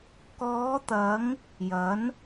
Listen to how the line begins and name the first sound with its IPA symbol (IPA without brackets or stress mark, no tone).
k